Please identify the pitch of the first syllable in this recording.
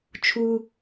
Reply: high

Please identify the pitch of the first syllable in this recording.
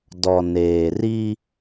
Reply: low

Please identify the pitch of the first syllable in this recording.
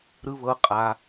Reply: high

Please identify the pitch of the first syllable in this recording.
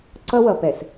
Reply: high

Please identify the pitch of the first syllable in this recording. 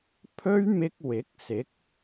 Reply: high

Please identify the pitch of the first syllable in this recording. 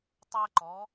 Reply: high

